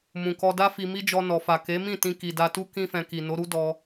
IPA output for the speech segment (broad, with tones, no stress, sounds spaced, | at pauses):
m ũ˨ k ɔ˧ d a˦ f i˧ m i˦ d͡ʒ ɔ˧ n ɔ˨ f a˨ k e˨˦ m ĩ˦˨ t ĩ˧ k i˨ d a˧ t u˦ k ĩ˦ f ɛ̃˧ k i˨ n o˨˦ ɾ u˦ d ɔ˧